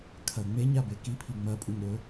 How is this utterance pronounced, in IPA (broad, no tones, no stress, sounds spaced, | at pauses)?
kʰ ɐ ŋ͡m e ɲ a b e k i pʰ i ŋ͡m ɐ pʼ u ɲ ɾ ɵ